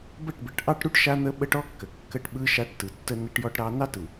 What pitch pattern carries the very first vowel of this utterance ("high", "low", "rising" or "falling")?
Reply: falling